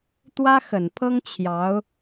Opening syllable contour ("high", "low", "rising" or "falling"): high